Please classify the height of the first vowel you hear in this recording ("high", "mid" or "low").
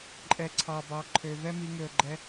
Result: mid